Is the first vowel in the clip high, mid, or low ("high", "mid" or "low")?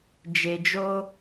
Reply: mid